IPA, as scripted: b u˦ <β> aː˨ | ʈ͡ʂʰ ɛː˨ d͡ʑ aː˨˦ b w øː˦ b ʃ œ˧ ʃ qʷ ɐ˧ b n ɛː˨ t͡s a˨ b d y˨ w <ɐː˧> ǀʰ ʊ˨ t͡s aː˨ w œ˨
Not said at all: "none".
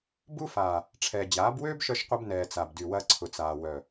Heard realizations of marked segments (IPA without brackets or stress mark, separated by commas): f, ɐː˧